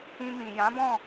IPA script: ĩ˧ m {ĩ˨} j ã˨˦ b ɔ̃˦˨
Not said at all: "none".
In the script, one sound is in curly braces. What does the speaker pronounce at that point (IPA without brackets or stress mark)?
ĩ˨